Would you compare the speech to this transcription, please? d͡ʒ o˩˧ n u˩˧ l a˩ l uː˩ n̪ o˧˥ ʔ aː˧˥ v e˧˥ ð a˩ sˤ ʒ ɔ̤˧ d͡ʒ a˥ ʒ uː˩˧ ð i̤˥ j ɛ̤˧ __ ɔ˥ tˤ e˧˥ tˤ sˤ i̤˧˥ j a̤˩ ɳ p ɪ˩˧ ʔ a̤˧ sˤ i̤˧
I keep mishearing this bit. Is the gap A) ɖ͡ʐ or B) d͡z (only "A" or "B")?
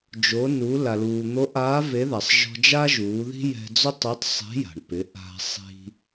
B